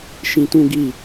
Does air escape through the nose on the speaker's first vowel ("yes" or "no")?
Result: yes